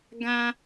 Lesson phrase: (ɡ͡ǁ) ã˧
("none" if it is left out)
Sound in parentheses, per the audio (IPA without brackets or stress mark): ɡ